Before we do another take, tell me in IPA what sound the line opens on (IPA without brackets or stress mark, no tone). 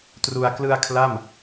t